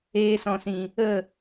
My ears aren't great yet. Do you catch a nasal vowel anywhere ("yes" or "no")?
yes